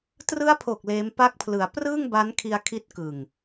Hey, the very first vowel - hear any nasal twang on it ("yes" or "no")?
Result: no